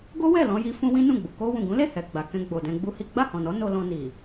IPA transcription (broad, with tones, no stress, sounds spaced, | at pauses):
ɡ o˦ w ɛ˦˨ l ɔ̃˧ j i˧ f ũ˦ w ĩ˦ n ũ˦˨ ɡ͡b u˨ k o˧ w ũ˨ ɡ ũ˨˦ l e˦˨ h ɛ˨ ɡ͡b a˨ k ɛ̃˧ ɡ͡b o˨ d ɛ̃˧ ɡ͡b u˦ h i˦ ɡ͡b a˦˨ h ɔ̃˨ n ɔ˨˦ n o˧ l ɔ̃˧ n i˨